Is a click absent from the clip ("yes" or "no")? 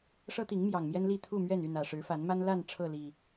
yes